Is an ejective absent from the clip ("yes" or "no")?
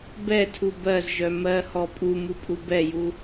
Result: no